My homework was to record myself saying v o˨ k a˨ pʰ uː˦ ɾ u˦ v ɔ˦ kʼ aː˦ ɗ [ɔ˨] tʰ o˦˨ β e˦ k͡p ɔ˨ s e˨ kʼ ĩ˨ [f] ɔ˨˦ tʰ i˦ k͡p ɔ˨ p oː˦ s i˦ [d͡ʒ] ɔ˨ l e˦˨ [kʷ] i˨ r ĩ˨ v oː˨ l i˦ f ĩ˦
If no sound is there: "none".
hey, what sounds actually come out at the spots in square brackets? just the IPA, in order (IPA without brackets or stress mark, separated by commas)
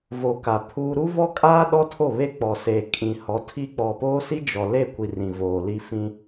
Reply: ɔ˦, h, d͡ʒ, kʷ